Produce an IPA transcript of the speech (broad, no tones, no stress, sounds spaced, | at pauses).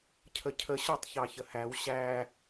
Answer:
cʰ ə cʰ ə ɕ ɔ tˤ ç ɑ ç ə h æ w ɕ æ